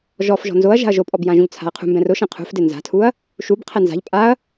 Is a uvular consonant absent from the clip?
no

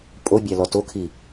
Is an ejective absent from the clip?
no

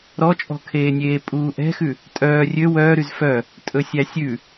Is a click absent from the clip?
yes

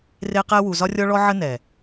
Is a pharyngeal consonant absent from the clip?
no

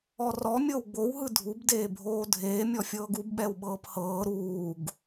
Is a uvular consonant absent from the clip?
yes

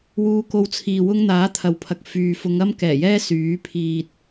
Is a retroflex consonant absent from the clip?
yes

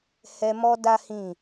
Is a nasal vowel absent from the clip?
no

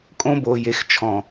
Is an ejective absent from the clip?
no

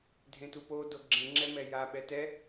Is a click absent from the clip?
no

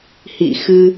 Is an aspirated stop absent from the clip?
yes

